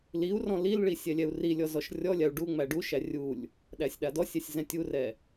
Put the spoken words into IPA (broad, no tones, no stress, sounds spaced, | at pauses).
l i u̯ r ɔ̃ l i l ɭ i sʲ ɛ lʲ ɛ u̯ r i lʲ ɔ z ɔ ʃ rʲ ɔ lʲ a u̯ ɖ u ŋ͡m æ ɖ u ʃ æ rʲ u lʲ | ɗ æ sʲ ɗ a d ɔ sʲ ɛ sʲ z ɛ̃ tʲ u r ɛ